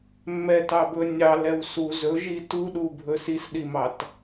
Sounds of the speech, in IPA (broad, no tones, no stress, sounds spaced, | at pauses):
mː ɛ t ɑ b ɵ nʲ ɑ l ɛ w s u z ɵ ʒ i t u ɗ u bʱ ɵ s i s ɗ i m ɑ t